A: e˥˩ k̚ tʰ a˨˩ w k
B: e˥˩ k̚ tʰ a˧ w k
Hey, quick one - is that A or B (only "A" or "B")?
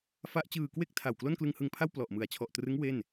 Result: A